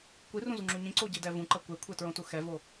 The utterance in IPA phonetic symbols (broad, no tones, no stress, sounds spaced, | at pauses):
kʷ i r ũ z u ŋ͡ǁ u ɲ ĩ ǀ o ɟ i d ɛ v ũ ǃ ʌ kʷ e kʷʰ e t ɹ õ t u x ɛ v o